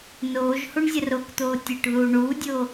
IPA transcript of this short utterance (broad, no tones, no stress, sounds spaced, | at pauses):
n oː ʒ h u ɳ zʲ ɐ r o k t̪ oː tʲ ɘ ʈ ð uː ɳ uː dʲ oː